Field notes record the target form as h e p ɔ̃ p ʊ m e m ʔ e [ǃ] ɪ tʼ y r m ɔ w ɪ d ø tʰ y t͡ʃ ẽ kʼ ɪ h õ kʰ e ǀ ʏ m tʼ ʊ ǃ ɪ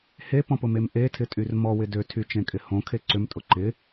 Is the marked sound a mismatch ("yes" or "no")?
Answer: yes